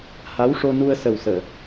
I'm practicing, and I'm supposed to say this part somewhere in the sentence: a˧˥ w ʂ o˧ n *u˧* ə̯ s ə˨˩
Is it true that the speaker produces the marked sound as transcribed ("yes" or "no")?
yes